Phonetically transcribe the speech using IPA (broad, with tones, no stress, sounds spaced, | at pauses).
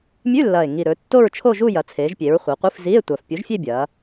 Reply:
mʲ ʉ˧˥˧ lː ɐː˨˩ e̯ ŋ i˨˩ ɾ ɵː˩˧ tː o˥˧ ɹ t͡ʃʰ o˥˧ ʒ u˥˧ j ɐ˩˧ t͡sʰ eː˩˧ ʒ pʲ e˩˧ ɹ χʷ ɨ˩˧ qʷ ɨ˧˥˧ f z i˧˥˧ e̯ tʷ a˨˩ f pʲ u˨˥ ʒ fʲ e˥˧ bʲ ɐː˩˧